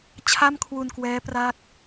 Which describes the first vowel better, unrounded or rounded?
unrounded